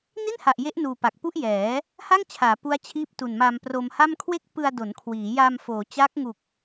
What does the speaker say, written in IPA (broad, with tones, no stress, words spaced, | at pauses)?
ni˥˩nha˨˩ʔ je˦˥ʔnuː˨˩ pa˨˩k̚pu˥˩ʔjɛː˩˦ | ha˥˩ŋt͡ɕʰaː˩˦ pu˦˥a̯t͡ɕʰiː˦˥p̚ tu˨˩nma˧mpro˧mha˥˩m kʰwe˥˩k̚pɯ˧a̯do˩˦n kʰwiː˩˦ja˧m foː˩˦t͡ɕa˦˥k̚ŋu˨˩k̚